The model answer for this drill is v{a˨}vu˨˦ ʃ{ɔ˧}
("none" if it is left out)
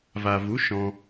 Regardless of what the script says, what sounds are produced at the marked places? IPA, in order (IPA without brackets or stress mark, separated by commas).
a˨, ɔ̃˧